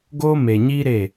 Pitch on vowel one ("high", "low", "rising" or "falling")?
high